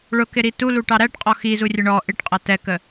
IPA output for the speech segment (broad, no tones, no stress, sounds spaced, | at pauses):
ɭ ʊ k ɪ ɾ i t u l u ʈ ɑ ɾ æ ʈ qʼ ɔ x i z u rʲ ə ɳ ɔ ʔ ɪ ʈ qʼ ʌ t ɛ k ə